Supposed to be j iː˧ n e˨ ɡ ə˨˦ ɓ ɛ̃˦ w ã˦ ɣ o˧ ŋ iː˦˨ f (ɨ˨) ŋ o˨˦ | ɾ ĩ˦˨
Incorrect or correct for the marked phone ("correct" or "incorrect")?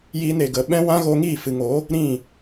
correct